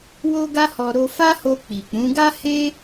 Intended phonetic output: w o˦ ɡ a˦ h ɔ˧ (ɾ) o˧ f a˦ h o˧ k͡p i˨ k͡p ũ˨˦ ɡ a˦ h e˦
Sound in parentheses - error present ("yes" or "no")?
no